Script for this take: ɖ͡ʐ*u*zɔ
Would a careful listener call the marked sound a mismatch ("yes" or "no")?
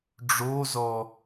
yes